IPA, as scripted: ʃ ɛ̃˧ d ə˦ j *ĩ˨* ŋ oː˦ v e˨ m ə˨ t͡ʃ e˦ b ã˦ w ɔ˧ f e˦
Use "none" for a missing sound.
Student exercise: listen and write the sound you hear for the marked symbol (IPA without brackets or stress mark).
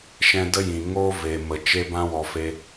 ĩ˨